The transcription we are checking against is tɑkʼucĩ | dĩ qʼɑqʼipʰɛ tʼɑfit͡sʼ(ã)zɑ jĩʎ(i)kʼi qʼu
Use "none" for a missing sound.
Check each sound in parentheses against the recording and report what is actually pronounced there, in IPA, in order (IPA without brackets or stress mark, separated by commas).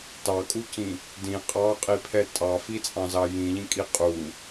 ɑ̃, ĩ